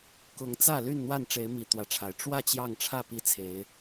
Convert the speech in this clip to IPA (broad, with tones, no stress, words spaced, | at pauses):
kʊ˨˦ŋt͡sä˥˨ ly˥˨nn̪wa˥˨nʈ͡ʂe˨˦ɪ̯mi˨˩ t̪wä˨˦ʈ͡ʂʰa˨˩ɪ̯ ʈ͡ʂwä˥˨ t͡ɕjɑ˥˨ŋ ʈ͡ʂʰä˥˨ pi˦t͡sʰe˨˦ɪ̯